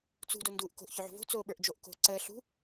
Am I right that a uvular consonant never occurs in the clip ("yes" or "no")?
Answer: yes